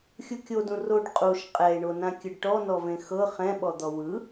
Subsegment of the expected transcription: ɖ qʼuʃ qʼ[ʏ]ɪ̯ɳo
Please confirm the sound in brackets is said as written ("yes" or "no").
no